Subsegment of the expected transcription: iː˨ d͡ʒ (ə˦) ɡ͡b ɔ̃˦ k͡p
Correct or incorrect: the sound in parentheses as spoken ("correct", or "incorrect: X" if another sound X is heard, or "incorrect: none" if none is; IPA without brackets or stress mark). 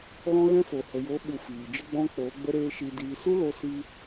correct